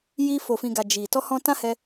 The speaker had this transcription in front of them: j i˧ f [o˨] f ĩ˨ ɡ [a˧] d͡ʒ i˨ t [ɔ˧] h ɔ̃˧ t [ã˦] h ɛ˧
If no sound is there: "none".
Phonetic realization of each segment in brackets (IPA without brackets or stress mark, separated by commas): o˨, a˨, ɔ˧, ã˦